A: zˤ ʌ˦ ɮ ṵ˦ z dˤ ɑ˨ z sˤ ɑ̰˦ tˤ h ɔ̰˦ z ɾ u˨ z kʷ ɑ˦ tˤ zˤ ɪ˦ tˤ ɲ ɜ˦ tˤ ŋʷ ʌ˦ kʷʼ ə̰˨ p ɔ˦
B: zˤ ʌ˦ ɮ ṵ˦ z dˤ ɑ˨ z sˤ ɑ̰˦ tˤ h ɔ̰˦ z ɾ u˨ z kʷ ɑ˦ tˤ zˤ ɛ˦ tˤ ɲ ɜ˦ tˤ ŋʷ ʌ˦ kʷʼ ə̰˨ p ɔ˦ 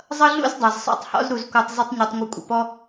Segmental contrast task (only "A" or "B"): A